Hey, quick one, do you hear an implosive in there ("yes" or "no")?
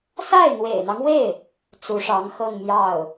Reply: no